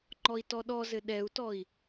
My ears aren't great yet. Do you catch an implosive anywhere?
yes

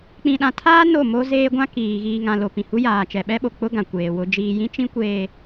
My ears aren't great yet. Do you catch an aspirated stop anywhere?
yes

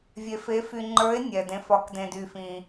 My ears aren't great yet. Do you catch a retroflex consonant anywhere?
no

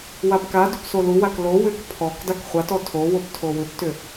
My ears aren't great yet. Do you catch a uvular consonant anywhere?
yes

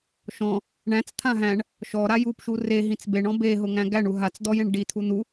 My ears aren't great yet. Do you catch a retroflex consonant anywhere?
yes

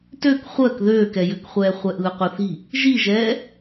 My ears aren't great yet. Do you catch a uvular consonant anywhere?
yes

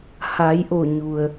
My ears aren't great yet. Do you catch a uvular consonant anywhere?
no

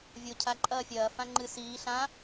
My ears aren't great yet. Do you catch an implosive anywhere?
no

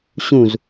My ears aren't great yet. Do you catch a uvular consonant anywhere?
no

